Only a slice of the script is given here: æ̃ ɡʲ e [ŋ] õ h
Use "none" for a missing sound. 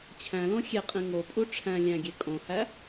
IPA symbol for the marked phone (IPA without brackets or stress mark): kʼ